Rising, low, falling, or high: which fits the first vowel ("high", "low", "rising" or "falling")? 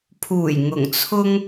low